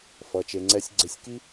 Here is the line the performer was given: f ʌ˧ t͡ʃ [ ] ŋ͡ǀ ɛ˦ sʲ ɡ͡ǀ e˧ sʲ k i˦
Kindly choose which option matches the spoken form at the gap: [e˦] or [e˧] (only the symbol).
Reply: e˧